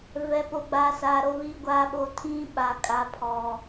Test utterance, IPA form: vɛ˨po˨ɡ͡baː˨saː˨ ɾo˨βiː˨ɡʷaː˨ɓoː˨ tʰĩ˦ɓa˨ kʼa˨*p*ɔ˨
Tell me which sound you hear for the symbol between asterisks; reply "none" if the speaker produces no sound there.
pʰ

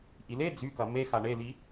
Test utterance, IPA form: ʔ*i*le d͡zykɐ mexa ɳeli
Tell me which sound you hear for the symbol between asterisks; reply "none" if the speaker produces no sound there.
i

